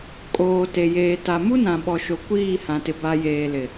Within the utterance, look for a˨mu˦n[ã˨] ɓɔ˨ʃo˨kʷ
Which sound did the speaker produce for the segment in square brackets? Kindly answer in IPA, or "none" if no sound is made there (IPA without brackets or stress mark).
ã˨